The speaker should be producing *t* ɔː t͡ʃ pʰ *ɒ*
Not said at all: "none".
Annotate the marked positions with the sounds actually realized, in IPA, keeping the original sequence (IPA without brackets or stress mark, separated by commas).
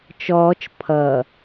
t͡ʃ, ʌ